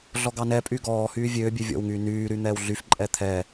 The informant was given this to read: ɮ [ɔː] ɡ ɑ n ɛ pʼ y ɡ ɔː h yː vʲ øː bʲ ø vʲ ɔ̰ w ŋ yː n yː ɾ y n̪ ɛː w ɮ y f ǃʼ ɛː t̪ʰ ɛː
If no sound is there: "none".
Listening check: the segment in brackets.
ɔ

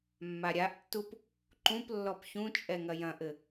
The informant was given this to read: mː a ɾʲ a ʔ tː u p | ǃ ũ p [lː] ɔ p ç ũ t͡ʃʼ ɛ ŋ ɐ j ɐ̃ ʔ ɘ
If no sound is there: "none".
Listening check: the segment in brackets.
lː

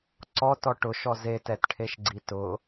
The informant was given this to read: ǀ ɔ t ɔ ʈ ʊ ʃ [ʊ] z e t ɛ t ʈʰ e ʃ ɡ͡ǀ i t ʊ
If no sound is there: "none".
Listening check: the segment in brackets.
ɔ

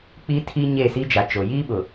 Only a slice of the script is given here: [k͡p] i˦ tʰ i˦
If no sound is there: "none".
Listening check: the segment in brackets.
k͡p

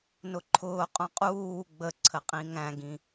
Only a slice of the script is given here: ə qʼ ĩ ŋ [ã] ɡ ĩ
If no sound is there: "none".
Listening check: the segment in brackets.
æ̃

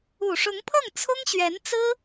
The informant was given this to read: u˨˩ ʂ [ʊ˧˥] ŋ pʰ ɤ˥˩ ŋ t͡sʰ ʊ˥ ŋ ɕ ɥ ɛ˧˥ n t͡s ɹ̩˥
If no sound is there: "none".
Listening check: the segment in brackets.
ʊ˧˥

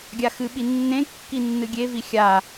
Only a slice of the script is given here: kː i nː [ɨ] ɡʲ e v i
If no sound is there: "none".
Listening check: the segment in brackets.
ɨ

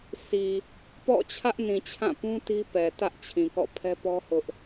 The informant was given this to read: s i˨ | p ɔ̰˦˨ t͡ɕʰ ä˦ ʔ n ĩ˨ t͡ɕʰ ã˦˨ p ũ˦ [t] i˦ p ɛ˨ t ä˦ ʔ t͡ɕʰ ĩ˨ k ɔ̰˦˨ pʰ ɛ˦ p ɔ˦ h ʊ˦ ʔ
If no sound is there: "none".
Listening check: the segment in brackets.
t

